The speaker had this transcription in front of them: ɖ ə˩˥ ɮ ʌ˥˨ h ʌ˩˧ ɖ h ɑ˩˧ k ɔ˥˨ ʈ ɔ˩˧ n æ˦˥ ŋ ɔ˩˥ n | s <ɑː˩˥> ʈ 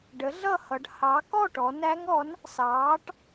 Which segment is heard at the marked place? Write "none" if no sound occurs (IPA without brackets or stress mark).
ɑː˩˥